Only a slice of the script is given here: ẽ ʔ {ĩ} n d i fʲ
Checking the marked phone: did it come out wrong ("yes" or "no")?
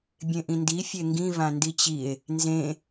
no